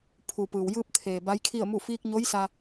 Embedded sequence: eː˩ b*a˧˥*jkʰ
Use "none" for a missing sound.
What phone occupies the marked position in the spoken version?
a˧˥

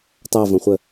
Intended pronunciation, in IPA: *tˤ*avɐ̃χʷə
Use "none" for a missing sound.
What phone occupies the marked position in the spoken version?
tˤ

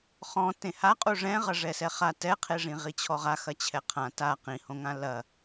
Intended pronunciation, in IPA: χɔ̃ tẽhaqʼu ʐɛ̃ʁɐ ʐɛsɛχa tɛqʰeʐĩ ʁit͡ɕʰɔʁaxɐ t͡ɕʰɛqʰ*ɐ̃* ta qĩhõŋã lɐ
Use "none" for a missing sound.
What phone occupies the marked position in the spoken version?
ã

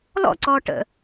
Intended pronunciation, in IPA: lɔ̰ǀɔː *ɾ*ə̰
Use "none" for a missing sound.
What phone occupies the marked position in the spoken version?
ʈ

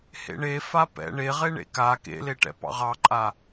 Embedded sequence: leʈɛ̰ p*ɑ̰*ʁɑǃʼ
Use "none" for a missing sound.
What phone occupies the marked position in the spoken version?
ɑ̰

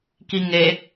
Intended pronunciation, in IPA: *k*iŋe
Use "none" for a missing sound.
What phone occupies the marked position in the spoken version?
k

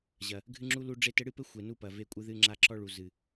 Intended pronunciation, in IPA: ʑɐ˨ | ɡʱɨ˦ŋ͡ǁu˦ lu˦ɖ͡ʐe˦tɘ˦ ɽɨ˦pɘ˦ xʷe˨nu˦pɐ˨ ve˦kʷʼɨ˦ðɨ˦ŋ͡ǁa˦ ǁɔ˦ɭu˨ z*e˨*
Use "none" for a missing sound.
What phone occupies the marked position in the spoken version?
ɨ˨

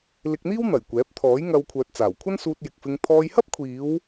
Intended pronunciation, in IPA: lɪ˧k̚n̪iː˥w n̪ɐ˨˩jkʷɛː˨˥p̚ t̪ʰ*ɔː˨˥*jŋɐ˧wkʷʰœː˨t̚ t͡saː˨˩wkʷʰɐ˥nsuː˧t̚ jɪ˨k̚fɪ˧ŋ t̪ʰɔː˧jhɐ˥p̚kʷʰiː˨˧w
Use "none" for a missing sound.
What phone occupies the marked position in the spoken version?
ɔː˨˥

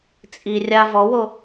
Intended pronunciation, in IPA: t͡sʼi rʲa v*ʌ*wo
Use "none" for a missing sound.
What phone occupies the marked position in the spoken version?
ɔ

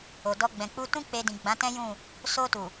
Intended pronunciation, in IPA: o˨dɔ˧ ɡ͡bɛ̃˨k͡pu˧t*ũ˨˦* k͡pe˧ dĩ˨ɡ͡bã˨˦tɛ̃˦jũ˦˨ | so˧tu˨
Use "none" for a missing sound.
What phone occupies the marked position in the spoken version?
ũ˦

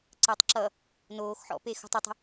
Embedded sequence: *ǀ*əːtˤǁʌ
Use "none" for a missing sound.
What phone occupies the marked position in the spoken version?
ǀ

